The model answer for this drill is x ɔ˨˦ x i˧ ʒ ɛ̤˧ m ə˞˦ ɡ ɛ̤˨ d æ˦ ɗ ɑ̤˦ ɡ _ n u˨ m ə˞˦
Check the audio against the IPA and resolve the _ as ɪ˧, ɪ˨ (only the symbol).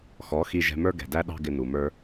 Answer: ɪ˧